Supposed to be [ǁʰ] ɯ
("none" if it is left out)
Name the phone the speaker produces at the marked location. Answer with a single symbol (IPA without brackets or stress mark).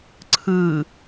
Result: ǀʰ